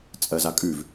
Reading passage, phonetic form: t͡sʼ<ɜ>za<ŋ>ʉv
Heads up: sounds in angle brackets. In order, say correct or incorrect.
correct, incorrect

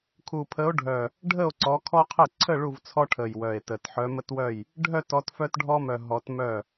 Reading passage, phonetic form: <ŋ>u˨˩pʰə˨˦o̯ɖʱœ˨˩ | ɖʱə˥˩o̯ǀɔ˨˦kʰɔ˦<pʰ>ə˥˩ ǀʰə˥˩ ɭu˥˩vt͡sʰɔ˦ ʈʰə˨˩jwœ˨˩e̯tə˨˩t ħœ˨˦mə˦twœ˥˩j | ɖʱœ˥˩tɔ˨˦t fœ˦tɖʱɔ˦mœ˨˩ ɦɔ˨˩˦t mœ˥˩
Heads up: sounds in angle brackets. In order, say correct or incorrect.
incorrect, incorrect

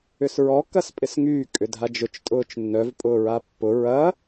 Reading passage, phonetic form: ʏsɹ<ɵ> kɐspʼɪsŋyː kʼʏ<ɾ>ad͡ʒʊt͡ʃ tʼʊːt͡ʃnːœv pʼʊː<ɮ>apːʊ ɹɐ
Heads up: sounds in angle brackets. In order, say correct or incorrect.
incorrect, incorrect, incorrect

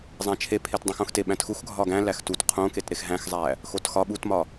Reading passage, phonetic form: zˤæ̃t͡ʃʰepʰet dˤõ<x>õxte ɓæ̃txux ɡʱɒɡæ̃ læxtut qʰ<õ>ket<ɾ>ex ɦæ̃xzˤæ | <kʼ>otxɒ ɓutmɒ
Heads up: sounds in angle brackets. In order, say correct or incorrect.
correct, correct, correct, incorrect

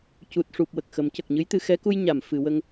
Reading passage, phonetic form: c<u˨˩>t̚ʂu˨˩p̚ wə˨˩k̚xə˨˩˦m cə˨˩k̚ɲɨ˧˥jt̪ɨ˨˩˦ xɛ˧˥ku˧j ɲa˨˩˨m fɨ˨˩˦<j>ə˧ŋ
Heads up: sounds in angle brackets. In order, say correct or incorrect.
correct, incorrect

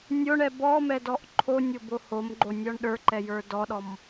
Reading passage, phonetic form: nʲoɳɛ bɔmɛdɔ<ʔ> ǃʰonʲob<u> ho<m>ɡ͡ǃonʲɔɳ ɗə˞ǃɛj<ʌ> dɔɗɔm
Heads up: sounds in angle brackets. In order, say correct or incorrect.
correct, incorrect, correct, incorrect

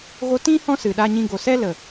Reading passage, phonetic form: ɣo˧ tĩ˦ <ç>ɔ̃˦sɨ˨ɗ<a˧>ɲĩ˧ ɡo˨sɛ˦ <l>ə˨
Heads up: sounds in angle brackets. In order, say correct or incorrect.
incorrect, correct, correct

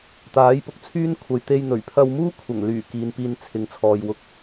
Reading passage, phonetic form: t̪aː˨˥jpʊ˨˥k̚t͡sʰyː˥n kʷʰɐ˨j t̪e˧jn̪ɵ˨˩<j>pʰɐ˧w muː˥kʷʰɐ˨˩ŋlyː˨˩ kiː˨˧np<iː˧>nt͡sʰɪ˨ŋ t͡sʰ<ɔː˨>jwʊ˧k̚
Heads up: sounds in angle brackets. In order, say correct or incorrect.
incorrect, correct, correct

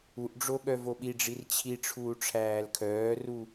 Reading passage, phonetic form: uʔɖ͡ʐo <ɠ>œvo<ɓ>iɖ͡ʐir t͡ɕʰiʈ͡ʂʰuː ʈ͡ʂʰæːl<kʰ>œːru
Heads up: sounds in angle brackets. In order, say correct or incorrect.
correct, correct, correct

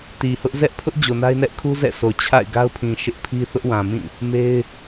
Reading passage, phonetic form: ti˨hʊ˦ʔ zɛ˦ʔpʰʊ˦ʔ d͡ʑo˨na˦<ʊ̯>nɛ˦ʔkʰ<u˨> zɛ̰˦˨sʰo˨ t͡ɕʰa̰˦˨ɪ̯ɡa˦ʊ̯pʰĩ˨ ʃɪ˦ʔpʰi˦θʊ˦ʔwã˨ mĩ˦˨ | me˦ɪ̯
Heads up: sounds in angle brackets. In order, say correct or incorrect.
incorrect, incorrect

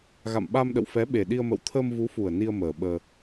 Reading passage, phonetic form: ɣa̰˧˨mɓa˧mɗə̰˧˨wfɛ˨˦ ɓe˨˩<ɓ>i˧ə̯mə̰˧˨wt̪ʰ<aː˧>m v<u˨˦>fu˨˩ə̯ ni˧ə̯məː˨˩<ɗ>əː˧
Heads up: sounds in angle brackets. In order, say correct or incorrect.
incorrect, incorrect, correct, incorrect

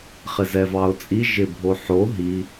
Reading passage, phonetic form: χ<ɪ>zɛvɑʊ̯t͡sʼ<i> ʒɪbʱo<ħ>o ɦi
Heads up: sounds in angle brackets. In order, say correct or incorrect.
correct, correct, correct

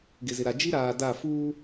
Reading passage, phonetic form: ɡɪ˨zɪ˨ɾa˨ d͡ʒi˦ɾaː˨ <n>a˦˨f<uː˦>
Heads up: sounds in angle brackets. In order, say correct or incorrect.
incorrect, correct

